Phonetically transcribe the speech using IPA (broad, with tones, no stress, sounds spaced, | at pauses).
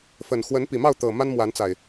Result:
f ə˨˩ n x w ə˨˦ n p i˨˩ m ɑ˥˨ ʊ̯ t̪ ɤ˨˩ m a˦ n m w a˨˦ n t͡s a˨˩ ɪ̯